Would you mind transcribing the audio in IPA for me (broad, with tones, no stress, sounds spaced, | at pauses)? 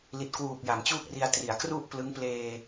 l i˨˩ t̚ k w uː˨˩ k̚ j a˩˦ m t͡ɕ uː˥˩ k̚ r i˧ a̯ t r i˩˦ a̯ k r u˥˩ ʔ p l ɯ˦˥ ŋ p l eː˧